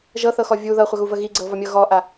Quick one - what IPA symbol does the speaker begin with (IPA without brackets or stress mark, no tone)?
ʒ